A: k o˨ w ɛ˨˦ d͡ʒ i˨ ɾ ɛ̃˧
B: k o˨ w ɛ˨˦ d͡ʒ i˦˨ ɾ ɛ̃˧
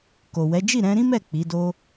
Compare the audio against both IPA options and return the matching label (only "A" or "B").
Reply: B